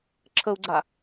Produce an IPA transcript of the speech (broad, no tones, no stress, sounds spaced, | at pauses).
ǁʰ ə u̯ ɡ͡ǀ a